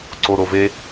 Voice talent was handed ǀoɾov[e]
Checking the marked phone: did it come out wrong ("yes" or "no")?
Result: no